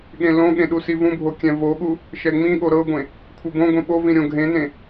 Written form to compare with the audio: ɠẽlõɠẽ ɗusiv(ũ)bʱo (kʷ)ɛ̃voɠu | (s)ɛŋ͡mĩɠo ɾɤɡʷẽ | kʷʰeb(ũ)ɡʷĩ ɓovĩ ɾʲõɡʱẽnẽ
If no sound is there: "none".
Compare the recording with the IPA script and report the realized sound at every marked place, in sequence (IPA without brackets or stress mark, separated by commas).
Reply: ũ, kʲ, ʃ, õ